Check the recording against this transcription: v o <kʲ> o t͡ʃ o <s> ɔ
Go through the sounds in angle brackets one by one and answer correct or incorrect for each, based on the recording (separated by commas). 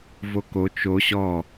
incorrect, incorrect